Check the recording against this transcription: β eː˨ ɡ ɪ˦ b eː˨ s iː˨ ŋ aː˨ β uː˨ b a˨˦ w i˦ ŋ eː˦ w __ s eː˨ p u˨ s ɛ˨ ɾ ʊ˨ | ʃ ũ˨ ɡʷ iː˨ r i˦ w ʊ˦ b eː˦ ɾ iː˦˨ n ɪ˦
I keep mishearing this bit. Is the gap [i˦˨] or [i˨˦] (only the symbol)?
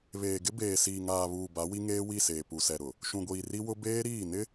i˦˨